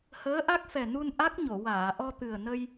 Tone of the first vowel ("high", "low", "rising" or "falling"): rising